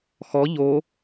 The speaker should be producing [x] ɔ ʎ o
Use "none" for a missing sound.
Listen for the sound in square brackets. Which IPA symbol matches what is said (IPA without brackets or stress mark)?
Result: x